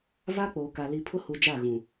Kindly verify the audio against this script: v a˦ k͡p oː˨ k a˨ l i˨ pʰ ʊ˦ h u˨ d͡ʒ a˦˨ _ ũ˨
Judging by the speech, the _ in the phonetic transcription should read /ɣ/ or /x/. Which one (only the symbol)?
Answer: ɣ